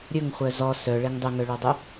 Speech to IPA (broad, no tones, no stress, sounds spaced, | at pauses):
ɾʲ ɵ ŋ χʷ œ z ɔ s œ ɭ e ŋ dˤ ɵ ŋ œ ɭ ɔ dˤ ɵ